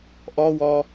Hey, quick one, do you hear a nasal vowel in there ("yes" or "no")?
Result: no